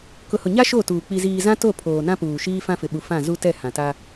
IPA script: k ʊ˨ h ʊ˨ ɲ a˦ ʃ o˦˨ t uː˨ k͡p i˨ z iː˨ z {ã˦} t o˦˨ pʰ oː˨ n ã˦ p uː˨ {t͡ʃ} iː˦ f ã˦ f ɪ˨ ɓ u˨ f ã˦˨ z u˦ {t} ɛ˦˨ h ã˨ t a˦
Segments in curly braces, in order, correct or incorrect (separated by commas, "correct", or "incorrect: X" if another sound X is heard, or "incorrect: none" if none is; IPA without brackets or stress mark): correct, incorrect: ʃ, correct